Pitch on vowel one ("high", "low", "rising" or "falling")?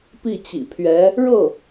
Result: falling